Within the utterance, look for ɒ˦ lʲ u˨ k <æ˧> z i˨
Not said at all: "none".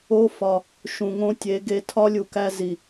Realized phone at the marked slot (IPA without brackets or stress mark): æ˧